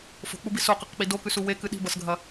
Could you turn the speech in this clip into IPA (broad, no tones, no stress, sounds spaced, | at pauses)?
f o̤ k͡p u b i s o q ɨ q k͡p i d o k ʉ s u w e k ɨ ɗ i̤ b ɐ s ɡʱ ɐ